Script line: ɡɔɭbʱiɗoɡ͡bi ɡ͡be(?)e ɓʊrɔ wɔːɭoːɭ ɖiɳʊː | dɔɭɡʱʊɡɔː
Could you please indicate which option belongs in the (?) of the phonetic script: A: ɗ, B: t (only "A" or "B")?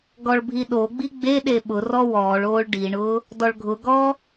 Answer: A